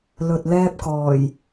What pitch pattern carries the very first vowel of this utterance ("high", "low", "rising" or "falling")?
low